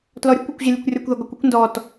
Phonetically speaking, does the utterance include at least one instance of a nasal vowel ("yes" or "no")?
no